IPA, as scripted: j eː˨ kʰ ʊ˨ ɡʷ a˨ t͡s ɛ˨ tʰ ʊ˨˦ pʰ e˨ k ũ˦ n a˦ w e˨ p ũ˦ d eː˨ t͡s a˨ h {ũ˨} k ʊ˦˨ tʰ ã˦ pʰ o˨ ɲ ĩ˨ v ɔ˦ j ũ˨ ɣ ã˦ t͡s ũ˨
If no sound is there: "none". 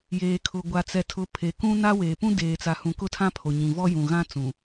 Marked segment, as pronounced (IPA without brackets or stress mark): ũ˨